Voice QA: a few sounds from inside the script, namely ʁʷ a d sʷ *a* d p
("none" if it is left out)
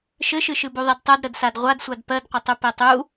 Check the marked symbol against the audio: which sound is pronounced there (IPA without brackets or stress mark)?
a